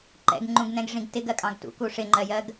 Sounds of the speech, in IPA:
ǃɛ̰ɡŋ͡ǃũɡnɛ̃ɡʐĩɡ tɪɡɜkʼɑ̃ɡ tṵ kuʂɪŋ͡ǃɜjɜɡ

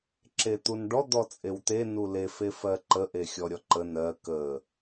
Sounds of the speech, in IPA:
ǁet̪unɖɔ d̪ɔt͡sʼewt̪e nule fefɜǃə ʔexʲɔɾʲɔǃə nɜ kə

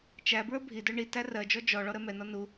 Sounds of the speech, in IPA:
t͡ʃæ bɹə˞bʱidə˞ ɳi tærɜd͡ʒɔ d͡ʒɔ ɭɔɾɜmɛnɔ nu

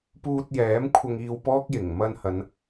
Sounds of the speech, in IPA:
puː˧t̚jɛː˨˥mkʷʰɐ˧ŋ iː˧wpɔː˥k̚ jɪ˨˩ŋ mɐ˧nhɐ˨˧n

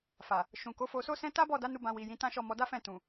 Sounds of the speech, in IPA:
fa˨ | ʃũ˨ ko˨˦fo˧so˦sɛ̃˦ ta˦bɔ˦˨da˨˦nu˧ bã˧wi˨jĩ˨˦tã˦ ʃɔ˦˨mɔ˧ da˦fɛ̃˦˨ tũ˨

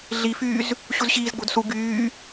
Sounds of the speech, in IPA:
ɮifyːz | ɕuzɕiːzɡ͡bo̤dsu ɡyː

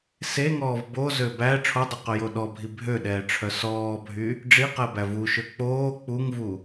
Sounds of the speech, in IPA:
seŋɔːv bozø bæ ʈ͡ʂʰodˤœqɵjo ɗɔbʱi bʱøɗɛːʈ͡ʂʰœ sɔːbʱy | ɖ͡ʐiqɛbæ vuʃø k͡poː k͡puŋvu

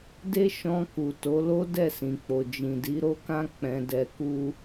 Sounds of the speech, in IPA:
de˦ʃɔ̃˧ku˨ to˨˦lo˦ dɛ˦˨sĩ˨k͡po˨ d͡ʒĩ˨di˨˦ɾo˦kã˦ k͡pɛ̃˧dɛ˧ku˦

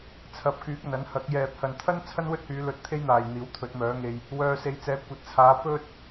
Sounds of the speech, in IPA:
t͡sʰɐ˨˥p̚kyː˨˥k̚ ɐ˨nɐ˨˥nhɐ˨˥k̚ jɛː˨p̚hɐ˨nt̪ʰɐ˥n t͡sʰɐ˥nwɵ˥t̚hyː˨˧lɵ˨˥t̚ t̪ʰe˥jn̪aː˨j n̪iː˨˥wt̪ʰɵ˨˥t̚mœː˨˥ŋe˧j | wœː˧se˨˥jt͡sɛː˨˥ kʷɐ˨˥t̚t͡sʰaː˨˧ pɵ˥t̚

